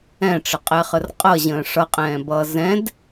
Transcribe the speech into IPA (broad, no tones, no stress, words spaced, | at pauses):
ɛ̃ʈ͡ʂəqʼɛχər qʼʌʑə̃ː ʂʌqʼɛ̃ːbʌː zɛ̃d